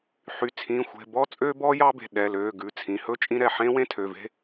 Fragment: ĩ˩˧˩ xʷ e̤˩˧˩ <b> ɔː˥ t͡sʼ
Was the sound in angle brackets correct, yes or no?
yes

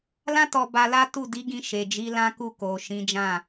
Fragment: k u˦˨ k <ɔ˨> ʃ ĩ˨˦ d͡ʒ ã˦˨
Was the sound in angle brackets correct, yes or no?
no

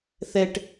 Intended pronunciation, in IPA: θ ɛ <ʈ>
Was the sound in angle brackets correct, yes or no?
yes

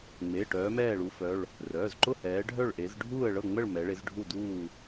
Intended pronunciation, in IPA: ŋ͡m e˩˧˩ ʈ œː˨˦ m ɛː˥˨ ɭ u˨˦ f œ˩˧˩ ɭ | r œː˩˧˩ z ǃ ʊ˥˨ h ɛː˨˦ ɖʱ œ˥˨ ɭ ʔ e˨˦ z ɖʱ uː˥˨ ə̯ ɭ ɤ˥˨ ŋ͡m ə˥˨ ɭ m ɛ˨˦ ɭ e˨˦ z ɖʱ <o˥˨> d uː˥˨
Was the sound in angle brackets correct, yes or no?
no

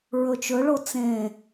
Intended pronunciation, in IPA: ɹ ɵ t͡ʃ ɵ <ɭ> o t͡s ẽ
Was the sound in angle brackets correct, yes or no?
yes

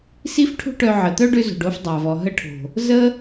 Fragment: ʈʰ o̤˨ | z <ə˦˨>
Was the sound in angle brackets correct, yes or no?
no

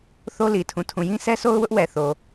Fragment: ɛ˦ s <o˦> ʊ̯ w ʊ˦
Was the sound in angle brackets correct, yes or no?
yes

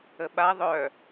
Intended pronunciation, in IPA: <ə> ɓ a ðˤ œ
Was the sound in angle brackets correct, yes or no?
yes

